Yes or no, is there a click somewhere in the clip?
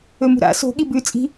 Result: no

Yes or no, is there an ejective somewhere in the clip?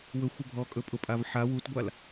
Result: yes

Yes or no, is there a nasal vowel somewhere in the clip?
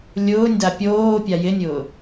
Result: no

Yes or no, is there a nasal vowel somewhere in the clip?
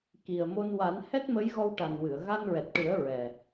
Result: no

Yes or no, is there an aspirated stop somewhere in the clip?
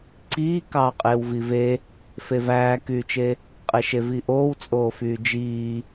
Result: no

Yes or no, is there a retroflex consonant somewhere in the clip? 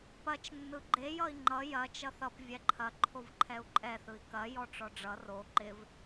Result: yes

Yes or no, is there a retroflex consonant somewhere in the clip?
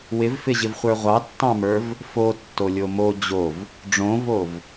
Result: yes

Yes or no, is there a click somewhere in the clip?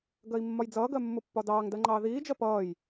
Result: yes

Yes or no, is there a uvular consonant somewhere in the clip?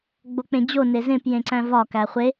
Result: yes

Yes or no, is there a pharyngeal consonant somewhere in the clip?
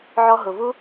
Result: yes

